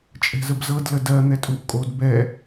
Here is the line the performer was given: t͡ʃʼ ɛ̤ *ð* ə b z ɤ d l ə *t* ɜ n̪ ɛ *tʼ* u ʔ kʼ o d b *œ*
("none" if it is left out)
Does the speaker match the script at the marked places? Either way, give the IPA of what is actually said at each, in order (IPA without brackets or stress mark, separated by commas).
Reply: z, d, tʼ, ɛ